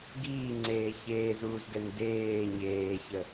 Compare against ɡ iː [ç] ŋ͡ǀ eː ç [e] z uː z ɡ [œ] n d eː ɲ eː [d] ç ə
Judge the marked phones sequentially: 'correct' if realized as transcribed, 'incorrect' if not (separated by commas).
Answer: incorrect, incorrect, incorrect, incorrect